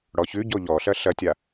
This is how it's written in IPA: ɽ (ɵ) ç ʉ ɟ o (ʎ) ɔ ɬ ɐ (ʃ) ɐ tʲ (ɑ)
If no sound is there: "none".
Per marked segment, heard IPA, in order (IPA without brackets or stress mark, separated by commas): ɔ, ʎ, ɬ, a